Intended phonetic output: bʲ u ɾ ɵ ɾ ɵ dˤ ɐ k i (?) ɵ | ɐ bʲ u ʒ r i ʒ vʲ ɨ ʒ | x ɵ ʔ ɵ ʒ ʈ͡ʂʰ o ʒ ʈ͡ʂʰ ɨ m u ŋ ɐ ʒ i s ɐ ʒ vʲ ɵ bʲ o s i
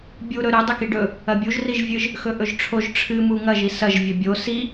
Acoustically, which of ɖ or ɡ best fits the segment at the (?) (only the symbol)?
ɖ